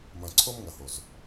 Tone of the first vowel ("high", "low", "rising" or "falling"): low